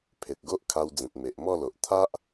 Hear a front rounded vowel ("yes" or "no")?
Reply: no